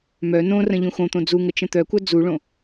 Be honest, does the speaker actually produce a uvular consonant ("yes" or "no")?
no